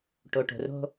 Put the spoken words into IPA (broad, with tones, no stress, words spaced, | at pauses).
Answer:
ʈo˨ʈo̤˨ro̤˦